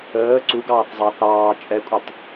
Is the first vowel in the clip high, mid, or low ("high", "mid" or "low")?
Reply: mid